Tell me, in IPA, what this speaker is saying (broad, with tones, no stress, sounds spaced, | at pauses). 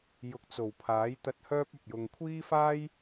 j ʊ˨ k̚ t͡s o˨˩ w pʰ aː˨˥ j t̪ ɐ˧ t̚ h œː˥ p̚ ɐ˨ p̚ j ʊ˨ ŋ kʷʰ iː˥ f aː˥ j